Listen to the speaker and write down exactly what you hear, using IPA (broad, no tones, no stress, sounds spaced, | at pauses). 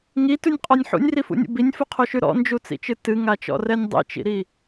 ŋ i t ʉ nʲ qʼ ɔ nʲ ħ ṵ nʲ r i f ṵ nʲ ṵ b i nʲ f u qʰ o ʃ ʉ ɾ ɔ̰ n d͡ʒ u t͡s ḭ t͡ʃ ɨ t ɨ ŋ a t͡ʃ ɔ̰ r ɛ nʲ dˤ ḭ t͡ʃ ḭ ɾ i